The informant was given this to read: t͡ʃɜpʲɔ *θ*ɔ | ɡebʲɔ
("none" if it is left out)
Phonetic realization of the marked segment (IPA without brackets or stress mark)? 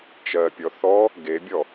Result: θ